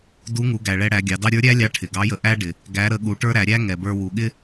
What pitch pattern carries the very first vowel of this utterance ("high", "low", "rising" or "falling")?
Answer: rising